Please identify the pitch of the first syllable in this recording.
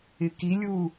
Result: low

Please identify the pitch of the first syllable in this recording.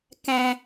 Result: low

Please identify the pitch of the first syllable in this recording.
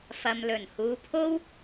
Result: low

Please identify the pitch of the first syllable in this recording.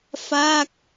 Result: falling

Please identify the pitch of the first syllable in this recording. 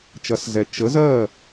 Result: rising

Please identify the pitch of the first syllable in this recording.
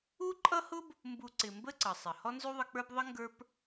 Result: high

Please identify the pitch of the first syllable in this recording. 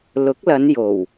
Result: rising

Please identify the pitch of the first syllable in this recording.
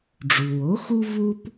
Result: low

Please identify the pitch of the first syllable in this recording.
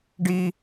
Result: high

